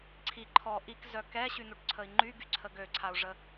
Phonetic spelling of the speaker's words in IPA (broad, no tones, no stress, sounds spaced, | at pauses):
ǀʰ i ǃʰ ɔ ʔ i k z œ k ɛ ɕ y n̪ u ʈ ǀʰ ə i̯ ŋ͡ǃ y ɡ y ǀʰ ə ɡ ø ǀʰ a u̯ ʐ ə